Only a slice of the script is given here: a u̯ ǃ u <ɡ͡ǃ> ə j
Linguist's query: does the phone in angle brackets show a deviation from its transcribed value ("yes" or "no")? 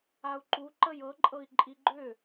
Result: yes